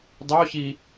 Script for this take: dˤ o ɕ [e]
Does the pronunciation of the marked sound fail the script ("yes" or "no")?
yes